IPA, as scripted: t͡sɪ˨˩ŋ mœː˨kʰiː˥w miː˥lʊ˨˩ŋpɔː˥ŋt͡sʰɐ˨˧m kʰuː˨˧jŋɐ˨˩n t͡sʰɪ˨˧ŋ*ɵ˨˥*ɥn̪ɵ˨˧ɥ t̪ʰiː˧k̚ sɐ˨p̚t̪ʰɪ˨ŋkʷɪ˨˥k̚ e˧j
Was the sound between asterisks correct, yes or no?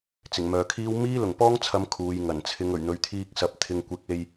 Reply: no